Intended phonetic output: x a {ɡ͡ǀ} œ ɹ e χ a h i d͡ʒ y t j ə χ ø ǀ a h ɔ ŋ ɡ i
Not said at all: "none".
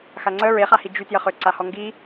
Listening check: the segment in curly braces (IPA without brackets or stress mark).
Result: ŋ͡ǀ